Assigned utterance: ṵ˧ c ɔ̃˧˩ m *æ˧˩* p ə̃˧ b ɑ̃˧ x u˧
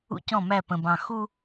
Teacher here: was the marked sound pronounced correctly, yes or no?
yes